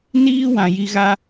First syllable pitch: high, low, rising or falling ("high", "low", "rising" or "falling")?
high